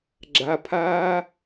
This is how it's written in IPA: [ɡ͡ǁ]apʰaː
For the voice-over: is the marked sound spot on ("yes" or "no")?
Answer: yes